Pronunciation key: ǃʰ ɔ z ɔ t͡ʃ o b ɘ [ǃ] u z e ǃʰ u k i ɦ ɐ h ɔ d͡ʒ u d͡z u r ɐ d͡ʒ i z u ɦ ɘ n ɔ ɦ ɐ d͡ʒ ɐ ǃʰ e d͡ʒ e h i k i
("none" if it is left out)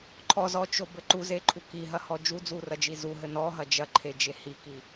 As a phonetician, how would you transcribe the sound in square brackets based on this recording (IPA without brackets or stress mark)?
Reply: ǃ